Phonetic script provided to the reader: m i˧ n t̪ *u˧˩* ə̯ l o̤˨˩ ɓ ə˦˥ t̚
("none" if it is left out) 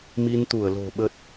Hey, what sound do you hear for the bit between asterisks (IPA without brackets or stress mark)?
u˧˩